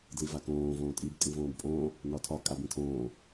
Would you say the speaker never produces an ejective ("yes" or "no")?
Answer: no